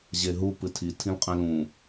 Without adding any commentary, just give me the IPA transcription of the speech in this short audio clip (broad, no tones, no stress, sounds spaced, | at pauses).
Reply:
ʑ e ɦ u p ɨ tʰ i tʰ ĩ l qʼ ẽ l ũ